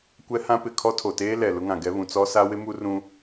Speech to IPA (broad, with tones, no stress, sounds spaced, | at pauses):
kʷ ɛ˦ h ã˦ p ɪ˨ kʰ ɔ˦ tʰ o˨ t eː˦ l ɛ˨ l ʊ˦ ŋ ã˨ ɡ ɛ˦ β ũ˨ t͡s ɔ˦ s a˦ w ɪ˦ m u˦ r ũ˦